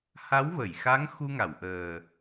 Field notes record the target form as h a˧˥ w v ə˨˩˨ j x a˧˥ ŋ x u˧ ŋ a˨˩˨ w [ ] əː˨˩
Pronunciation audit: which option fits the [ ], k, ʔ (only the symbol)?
ʔ